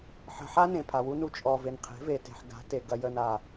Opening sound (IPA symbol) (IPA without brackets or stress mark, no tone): ħ